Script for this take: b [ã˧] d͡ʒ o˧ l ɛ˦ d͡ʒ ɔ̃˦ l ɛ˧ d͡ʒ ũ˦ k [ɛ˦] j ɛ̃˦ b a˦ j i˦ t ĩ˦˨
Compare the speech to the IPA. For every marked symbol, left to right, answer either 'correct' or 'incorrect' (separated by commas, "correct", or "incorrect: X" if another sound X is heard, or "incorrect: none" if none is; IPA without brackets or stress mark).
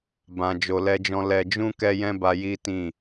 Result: correct, correct